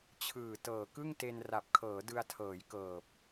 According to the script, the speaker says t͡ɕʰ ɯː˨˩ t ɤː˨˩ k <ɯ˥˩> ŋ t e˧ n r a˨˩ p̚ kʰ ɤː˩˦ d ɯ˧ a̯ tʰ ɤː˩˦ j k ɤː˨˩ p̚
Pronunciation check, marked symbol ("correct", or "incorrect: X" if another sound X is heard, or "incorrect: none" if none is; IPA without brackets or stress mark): correct